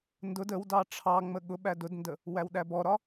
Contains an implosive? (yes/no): yes